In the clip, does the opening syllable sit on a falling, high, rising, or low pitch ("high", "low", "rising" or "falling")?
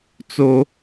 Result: high